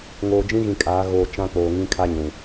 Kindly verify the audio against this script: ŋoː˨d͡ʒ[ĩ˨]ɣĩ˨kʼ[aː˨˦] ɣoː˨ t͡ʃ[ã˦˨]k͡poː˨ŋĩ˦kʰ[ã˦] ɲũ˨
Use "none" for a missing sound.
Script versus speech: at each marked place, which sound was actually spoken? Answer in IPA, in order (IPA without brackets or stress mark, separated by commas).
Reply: ĩ˦, aː˨˦, ã˦, a˦